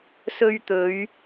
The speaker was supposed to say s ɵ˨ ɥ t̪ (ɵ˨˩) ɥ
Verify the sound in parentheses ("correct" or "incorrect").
incorrect